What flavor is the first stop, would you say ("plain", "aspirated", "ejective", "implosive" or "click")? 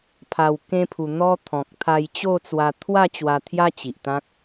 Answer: aspirated